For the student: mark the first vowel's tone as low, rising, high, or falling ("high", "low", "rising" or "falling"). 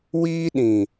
high